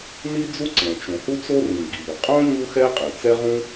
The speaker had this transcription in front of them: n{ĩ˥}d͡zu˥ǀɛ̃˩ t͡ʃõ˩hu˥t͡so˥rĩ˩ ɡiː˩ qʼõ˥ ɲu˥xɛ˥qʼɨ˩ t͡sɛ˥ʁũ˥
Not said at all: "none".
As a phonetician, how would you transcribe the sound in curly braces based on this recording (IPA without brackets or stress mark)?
i˥